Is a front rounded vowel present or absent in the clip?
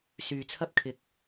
present